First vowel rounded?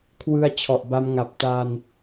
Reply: no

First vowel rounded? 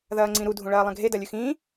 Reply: no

